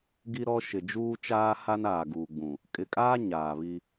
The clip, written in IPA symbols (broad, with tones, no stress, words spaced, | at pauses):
ɡi˦ɾɔ˦ ʃɪ˨d͡ʒuː˦t͡ʃaː˦ha˦n aː˨ɡuː˨ɡ͡bũ˨ | kʼɪ˨kʼaː˦ ɲaː˨βi˦